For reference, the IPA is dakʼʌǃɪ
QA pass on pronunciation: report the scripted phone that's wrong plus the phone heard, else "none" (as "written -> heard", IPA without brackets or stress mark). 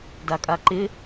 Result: ʌ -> a